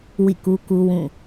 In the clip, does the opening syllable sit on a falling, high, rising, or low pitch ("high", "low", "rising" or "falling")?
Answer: falling